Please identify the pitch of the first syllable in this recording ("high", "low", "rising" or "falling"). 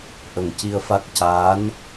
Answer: low